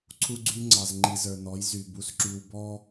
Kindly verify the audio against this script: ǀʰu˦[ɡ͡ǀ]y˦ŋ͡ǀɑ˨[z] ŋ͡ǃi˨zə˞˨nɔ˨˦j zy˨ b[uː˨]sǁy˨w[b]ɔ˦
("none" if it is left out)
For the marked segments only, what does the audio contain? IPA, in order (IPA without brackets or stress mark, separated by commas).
ɡ͡ǀ, z, u˨, b